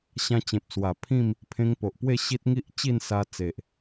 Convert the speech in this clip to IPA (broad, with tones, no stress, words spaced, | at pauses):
ɕã˧t͡ɕẽ˨p̚ swa˨˩pʰĩ˥˧m | pʰẽ˧ŋpo˨ʔpwe˥˧ ɕi˦t̚ ŋi˦ʔt͡ɕi˥˧n sa˧t͡se˨ʔ